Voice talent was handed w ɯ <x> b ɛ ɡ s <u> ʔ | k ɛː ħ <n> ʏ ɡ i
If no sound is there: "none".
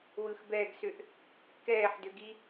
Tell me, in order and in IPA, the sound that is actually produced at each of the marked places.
x, ʏ, d

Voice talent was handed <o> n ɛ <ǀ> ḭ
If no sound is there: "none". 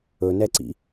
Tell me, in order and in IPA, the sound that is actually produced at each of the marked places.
ɵ, ǀ

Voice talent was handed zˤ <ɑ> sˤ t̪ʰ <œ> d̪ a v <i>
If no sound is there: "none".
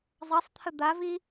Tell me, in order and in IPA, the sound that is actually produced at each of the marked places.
ɑ, ə, i

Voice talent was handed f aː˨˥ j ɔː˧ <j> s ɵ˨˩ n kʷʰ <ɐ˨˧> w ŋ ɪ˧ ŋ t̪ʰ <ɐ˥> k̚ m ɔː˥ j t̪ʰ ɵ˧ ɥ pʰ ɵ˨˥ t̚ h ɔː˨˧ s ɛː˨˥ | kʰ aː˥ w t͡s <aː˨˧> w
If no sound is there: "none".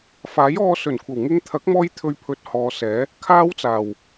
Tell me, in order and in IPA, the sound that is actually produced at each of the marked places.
none, ɐ˨˩, ɐ˨˥, aː˨˩

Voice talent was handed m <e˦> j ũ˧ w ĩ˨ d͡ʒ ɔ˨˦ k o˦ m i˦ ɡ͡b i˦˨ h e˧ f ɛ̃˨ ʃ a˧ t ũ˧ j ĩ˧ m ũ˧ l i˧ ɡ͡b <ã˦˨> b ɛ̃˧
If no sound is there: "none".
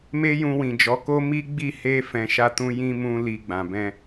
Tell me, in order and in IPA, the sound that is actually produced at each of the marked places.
e˦, ã˨

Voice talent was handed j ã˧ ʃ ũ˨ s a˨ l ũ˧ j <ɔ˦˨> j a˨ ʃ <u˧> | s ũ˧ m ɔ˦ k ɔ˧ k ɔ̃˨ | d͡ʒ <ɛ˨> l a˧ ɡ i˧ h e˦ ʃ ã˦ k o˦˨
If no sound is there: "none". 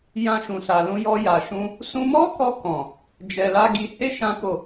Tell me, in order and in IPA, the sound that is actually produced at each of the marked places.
ɔ˧, ũ˧, ɛ˨

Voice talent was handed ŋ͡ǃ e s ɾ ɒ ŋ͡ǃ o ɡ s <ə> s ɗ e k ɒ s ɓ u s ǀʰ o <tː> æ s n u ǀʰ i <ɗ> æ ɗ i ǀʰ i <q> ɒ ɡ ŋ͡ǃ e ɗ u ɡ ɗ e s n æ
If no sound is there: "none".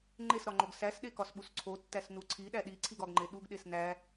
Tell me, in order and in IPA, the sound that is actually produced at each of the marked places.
æ, tː, ɗ, ɡ

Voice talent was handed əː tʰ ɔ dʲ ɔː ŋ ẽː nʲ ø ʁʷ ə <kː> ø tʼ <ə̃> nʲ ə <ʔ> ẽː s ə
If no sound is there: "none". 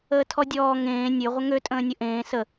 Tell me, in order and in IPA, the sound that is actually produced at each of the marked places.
ŋ, ə̃ː, ʔ

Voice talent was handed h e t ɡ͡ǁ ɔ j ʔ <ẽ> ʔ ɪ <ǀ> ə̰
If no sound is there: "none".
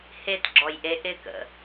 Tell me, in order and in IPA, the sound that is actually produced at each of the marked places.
e, k

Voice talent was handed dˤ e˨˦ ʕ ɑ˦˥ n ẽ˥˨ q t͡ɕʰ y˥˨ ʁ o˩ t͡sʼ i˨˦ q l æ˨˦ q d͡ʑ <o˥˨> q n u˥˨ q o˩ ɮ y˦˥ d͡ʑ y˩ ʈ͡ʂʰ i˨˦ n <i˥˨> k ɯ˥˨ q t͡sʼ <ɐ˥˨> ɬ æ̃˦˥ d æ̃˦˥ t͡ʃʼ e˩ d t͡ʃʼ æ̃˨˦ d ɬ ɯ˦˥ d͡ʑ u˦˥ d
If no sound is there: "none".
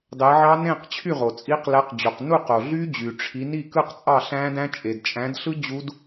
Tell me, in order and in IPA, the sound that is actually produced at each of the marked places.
o˩, i˥˨, ɑ˥˨

